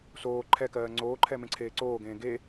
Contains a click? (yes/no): yes